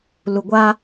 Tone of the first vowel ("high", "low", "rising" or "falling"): low